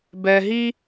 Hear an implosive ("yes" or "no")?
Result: no